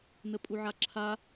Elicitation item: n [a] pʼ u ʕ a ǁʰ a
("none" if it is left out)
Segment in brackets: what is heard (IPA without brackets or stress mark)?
ə